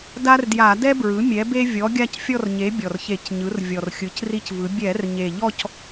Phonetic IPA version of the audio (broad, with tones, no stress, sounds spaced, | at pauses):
d a˦ r d j a˧˩˧ d ɛ˦ b ɹ ɯ˩˥ mʲ ɛ˩˥ b e˦ vʲ ɔ˩˥ ɡʲ a˦˨ c fʲ ɔ˦˨ r ɲ e˩˥ bʲ ɔ˨˩ r ç e˧˩˧ c ɲ ɯ˩˥ r vʲ ɔ˨˩ r xʲ ɯ˩˥ c r i˦ c v ɯ˩˥ bʲ ɛ˧˩˧ r ɲ e˨˩ ʎ ɔ˦˨ c